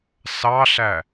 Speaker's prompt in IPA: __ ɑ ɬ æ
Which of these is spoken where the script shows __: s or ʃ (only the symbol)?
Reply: s